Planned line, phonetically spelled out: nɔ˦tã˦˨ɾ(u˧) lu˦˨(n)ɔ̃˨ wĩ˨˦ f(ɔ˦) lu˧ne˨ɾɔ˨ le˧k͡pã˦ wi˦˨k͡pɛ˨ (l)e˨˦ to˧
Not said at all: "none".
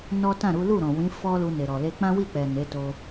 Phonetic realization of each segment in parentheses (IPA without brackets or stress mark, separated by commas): u˨˦, ɾ, ɔ˦, n